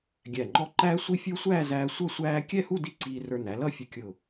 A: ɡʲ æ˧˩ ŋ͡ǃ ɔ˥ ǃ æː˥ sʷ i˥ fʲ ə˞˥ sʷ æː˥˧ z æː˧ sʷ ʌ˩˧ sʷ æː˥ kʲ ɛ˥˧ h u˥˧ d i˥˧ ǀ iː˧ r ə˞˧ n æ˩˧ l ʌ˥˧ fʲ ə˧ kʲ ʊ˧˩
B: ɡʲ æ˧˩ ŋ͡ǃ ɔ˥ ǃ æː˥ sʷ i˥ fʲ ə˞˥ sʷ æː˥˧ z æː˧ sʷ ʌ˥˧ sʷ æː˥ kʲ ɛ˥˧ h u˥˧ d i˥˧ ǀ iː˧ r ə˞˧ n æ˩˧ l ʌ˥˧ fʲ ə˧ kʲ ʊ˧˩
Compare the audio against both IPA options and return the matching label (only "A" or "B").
B